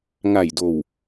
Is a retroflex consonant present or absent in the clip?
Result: absent